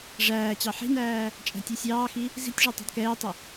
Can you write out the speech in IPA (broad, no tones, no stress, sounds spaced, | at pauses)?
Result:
ʐ æː t͡ɕ ɑ ħ i̤ n æː | t͡ʃʼ æ̤ tʲ ɛ sʲ ɑː x i | z i̤ tʲ ʐ ɑ tˤ ɑ̤ d k ɛː tˤ ə